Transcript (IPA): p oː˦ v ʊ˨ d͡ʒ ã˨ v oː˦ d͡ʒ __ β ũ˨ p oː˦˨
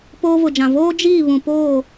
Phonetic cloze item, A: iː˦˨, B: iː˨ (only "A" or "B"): A